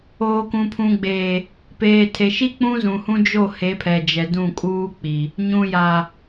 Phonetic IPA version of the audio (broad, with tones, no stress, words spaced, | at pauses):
oː˨kũ˨pʰũ˨ɡ͡beː˨ | peː˨tʰe˨ʃi˦ k͡pũ˦zũ˨hũ˦ d͡ʒo˦˨ he˨˦pʰɛ˨d͡ʒɛ˨ dũ˦˨kʼuː˦k͡pi˨ | ɲũ˨ja˨